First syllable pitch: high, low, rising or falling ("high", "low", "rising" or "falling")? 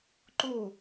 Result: falling